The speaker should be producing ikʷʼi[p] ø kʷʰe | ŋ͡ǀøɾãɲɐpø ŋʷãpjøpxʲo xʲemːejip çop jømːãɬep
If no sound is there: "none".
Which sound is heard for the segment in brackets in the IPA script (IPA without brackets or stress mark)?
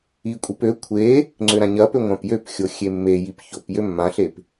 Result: p